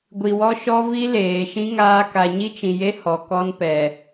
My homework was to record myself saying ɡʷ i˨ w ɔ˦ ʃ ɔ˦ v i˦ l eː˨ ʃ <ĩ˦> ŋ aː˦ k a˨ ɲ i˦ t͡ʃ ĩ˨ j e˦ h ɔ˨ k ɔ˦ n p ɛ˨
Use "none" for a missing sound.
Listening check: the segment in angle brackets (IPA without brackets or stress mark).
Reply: ĩ˦